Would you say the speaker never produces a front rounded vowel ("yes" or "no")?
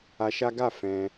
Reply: yes